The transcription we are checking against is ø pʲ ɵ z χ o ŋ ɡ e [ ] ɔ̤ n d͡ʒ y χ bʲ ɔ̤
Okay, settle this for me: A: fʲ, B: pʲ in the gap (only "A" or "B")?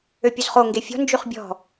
A